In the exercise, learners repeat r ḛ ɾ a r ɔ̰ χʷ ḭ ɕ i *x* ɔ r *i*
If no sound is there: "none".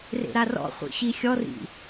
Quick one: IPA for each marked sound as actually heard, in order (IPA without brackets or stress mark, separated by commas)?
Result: xʲ, ḭ